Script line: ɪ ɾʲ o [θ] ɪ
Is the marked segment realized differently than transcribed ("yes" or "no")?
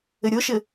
yes